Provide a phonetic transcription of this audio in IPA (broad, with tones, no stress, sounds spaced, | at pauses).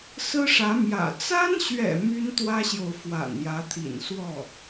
s ɹ̩˥ ʂ ä˧˥ m j ä̰˨˩ t͡s a˥ n ɕ ɥ ɛ̰˨˩ m y˥ n t̪ w ä˥ ɕ j o˨ ʊ̯ f w a̰˨˩ n j ä˧˥ t̪ʰ ḭ˨˩ n s w ɔ˥˩